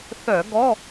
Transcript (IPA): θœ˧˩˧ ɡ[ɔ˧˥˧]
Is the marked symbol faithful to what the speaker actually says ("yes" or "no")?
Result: yes